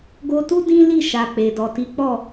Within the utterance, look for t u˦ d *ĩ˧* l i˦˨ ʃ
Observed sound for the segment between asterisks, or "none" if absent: ĩ˦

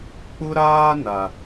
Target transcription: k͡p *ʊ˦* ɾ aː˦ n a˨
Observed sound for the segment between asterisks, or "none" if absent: ʊ˦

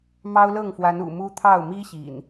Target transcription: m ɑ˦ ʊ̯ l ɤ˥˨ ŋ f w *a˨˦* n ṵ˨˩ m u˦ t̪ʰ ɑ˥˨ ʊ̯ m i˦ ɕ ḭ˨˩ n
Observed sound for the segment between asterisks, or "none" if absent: a˨˦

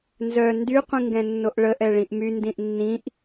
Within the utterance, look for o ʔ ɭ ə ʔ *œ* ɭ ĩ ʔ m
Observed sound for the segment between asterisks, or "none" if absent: ɛ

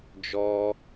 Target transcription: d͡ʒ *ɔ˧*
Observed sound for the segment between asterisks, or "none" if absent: ɔ˧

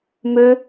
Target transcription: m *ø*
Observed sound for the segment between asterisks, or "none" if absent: ø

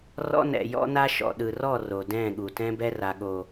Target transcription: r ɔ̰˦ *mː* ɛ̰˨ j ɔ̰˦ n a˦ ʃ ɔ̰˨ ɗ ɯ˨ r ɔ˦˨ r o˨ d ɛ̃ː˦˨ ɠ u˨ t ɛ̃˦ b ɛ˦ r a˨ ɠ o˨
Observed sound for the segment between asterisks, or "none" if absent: n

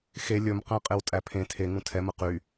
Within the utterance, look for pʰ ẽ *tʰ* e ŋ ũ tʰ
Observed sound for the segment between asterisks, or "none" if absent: tʰ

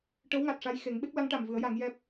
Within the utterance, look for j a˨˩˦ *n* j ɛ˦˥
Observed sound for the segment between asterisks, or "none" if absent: ŋ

